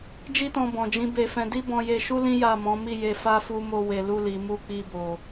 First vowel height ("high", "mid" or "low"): high